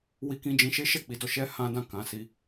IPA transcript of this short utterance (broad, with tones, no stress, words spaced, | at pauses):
wi˧kĩ˧d͡ʒĩ˧ ʃe˦ʃɛ˦˨k͡pi˨˦dɔ˧ ʃɛ˦ hã˦dã˦˨ kã˨˦si˧